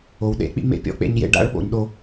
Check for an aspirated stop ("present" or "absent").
absent